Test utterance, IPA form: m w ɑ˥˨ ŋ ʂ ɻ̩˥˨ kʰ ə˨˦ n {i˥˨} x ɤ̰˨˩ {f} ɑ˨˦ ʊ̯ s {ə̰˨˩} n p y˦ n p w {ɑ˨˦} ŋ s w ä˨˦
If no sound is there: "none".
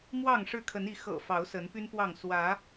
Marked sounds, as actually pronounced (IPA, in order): i˨˦, f, ə˨˦, ɑ˥˨

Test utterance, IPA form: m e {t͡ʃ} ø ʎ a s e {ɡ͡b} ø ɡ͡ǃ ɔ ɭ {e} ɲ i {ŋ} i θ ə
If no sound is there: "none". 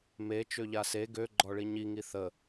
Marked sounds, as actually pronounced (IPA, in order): t͡ʃ, ɡ, i, ŋ

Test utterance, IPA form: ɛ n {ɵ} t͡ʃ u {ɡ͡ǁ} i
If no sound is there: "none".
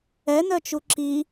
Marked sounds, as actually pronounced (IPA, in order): œ, ǁ

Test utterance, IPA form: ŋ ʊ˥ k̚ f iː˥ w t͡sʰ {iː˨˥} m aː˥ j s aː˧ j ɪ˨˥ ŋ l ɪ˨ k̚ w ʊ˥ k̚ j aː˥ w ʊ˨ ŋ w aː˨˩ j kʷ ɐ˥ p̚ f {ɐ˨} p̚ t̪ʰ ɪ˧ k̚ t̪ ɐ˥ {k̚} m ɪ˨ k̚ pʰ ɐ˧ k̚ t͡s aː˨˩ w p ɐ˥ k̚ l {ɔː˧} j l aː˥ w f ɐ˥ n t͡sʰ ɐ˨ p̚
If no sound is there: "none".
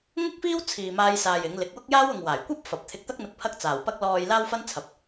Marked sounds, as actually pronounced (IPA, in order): iː˧, ɐ˨, k̚, ɔː˧

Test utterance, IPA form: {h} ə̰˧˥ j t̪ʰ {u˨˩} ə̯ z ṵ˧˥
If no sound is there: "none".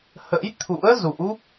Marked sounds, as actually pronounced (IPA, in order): h, ṵ˧˥

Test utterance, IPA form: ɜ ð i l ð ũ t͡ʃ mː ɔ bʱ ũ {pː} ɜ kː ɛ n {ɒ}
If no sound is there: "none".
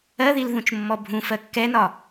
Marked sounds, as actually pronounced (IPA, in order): f, ɒ

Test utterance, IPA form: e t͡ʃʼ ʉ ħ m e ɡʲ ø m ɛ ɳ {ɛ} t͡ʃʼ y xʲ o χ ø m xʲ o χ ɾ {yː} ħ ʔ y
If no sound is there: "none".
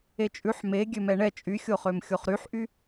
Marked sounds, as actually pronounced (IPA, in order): ɛ, y

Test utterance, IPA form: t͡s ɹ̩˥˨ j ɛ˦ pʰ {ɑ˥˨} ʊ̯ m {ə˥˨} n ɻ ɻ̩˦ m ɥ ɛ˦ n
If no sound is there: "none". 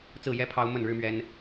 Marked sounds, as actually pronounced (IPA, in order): ɑ˦, ə˥˨

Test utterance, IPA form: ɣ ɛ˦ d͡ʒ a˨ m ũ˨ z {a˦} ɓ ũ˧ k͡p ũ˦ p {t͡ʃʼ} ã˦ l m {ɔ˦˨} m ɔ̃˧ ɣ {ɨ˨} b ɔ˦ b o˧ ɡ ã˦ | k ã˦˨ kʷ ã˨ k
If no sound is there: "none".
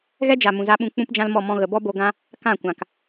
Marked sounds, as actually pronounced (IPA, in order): a˧, d͡ʒ, ɔ˦˨, ə˨

